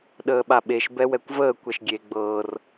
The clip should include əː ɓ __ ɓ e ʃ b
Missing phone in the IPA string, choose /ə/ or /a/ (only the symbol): a